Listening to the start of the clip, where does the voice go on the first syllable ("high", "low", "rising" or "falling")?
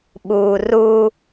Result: low